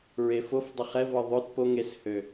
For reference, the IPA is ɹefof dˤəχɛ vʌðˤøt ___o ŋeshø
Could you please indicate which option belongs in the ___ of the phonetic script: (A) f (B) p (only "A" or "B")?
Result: B